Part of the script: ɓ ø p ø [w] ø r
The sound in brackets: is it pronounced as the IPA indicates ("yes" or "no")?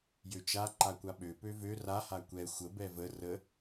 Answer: no